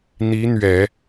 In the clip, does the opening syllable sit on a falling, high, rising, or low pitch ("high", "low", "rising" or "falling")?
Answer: rising